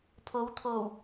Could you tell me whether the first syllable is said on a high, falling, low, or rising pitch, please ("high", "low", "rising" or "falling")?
rising